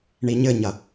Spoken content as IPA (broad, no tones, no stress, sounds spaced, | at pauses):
ɳ i ɲ ɘ ɲ ɐ